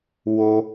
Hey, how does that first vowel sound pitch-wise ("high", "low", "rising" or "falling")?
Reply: high